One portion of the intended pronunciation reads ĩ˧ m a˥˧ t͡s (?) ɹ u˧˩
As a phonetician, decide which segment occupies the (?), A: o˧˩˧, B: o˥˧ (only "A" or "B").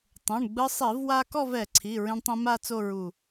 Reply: B